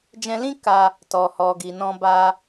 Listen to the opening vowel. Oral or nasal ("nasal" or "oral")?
nasal